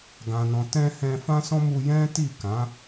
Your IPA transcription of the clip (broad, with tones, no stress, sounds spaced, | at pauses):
ɡ ã˨ n ɔ̃˨ t ɛ̃˧ h ɛ̃˧ f ã˦ s ɔ̃˦ m u˧ j ɛ̃˦ t i˦˨ k ã˨˦